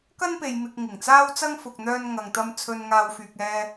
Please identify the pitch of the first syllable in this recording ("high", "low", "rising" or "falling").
high